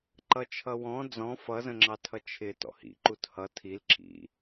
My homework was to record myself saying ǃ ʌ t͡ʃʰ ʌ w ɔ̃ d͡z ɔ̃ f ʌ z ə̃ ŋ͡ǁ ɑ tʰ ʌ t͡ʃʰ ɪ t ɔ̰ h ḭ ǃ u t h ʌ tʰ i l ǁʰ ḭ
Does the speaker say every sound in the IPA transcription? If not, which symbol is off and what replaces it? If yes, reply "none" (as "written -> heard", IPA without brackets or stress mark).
none